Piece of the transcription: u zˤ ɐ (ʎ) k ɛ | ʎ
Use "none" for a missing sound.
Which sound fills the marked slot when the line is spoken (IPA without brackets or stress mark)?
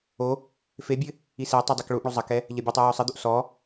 none